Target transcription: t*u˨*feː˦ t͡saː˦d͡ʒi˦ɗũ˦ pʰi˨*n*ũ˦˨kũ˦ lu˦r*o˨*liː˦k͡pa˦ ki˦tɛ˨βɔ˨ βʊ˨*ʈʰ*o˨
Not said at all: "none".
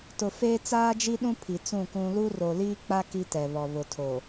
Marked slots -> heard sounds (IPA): ʊ˨, t͡s, o˨, tʰ

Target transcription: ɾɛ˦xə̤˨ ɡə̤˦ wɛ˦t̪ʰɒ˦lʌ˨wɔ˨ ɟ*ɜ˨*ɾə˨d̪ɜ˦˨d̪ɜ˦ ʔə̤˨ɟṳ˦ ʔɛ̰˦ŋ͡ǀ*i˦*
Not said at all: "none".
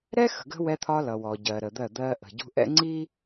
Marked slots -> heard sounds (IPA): ɜ˨, i˦

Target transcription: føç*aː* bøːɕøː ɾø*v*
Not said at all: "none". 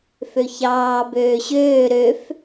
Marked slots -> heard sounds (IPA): ɑː, f

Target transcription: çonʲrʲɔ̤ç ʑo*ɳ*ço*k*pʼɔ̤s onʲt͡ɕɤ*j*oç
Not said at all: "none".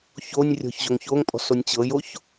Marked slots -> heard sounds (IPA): ŋ, ŋ, j

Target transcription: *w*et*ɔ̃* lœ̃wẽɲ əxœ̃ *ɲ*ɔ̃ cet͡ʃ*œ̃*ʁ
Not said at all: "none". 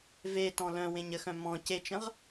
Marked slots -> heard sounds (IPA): v, ɔ̃, m, ə̃

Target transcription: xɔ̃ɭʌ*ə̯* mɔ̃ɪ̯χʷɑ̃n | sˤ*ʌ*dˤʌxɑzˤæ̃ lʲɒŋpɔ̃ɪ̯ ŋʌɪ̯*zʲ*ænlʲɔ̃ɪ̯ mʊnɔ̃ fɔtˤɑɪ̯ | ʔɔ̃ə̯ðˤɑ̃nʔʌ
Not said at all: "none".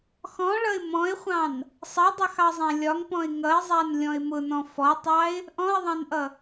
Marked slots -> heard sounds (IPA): ɪ̯, ʌ, zˤ

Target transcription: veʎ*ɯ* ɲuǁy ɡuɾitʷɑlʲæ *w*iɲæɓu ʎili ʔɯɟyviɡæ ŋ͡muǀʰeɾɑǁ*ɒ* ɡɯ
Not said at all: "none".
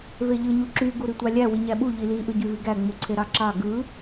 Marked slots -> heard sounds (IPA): ɯ, w, ɑ

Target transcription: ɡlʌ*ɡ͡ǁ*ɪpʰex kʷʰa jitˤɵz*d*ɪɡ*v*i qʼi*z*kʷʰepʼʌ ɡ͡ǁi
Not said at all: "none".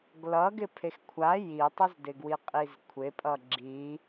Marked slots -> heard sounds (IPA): ɡ, d, w, z

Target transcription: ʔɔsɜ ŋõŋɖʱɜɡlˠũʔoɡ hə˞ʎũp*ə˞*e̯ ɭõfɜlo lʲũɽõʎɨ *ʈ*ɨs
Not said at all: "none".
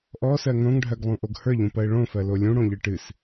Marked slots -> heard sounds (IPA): ɜ, ʈ

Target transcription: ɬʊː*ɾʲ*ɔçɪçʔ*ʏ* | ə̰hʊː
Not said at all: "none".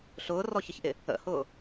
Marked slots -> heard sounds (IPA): r, ɪ

